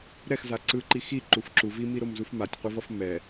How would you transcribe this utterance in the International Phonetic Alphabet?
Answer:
ɾɛxza ǀɯǃi xiǃuf ǁu vimiɾomzuf matʲqʷevʌf mɛ

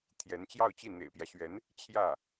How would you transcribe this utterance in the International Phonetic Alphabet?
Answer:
t̪ʰjɛ˧˥nt͡ɕjɑ˥˧ʊ̯t͡ɕi˥˩ n̪ḛ˨˩ɪ̯pjä˦ɕɥɛ˧˥n | t͡ɕʰjä˥˩

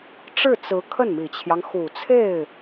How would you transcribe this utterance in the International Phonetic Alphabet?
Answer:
ʈ͡ʂɻ̩˥˩t͡sɹ̩˧˥ kʰə˥˩nmi˨˩t͡ɕʰjɑ˦ŋ xu˨˩t͡sʰe˥˩ɪ̯

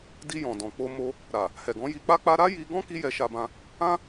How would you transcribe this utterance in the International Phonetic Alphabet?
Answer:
di˧jɔ̃˨dɔ̃˨ k͡po˧mo˧ | ɾa˨ | hɛ˨ɡɔ̃˨˦ ji˧k͡pa˦k͡pa˦ ɾa˦ji˧ɡɔ̃˦ ki˦jɛ˧ʃa˧bã˧ | ã˦

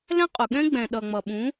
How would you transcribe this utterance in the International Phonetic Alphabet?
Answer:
lɛ̃˦qʼʊ˨ɠɛ̃˦ ɡ͡bɛ̃˨ɗʌ˨ŋ͡mʌ˨ ɓũ˨˦

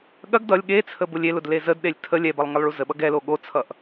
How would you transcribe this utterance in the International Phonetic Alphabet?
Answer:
ɠɐɡ dʌlʲ ɠet͡sʰə bʊlʲelʊd lezədɗelʲ tʰə lʲɛbɐlˠ ŋəlˠɭuzəɓʌɡ ɛlo ɠot͡sʰʌʔ

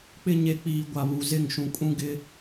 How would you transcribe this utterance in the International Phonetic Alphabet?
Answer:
k͡pɪ˦ ɲe˨k͡piː˨ ɡʷa˨βu˨zɪ˦˨ŋ ʃũ˨kʼũ˦ɡɪ˦

